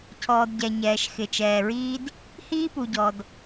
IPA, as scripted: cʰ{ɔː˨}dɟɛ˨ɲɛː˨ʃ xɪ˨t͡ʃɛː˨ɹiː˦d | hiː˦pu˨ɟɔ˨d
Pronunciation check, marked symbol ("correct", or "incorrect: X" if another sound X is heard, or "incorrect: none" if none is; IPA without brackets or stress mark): correct